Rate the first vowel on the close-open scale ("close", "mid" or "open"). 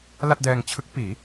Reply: open